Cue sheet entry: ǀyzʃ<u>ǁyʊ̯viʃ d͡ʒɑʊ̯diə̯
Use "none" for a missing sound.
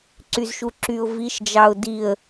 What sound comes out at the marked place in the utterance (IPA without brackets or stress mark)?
u